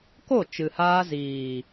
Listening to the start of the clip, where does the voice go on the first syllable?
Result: falling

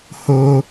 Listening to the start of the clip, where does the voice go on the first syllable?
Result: high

